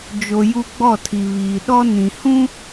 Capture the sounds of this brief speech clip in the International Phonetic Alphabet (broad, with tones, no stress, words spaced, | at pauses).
d͡ʒo˨ ju˦ɡ͡bɔ˦˨tʰi˨βiː˨ ɗɔ˦ nĩ˨ hũ˦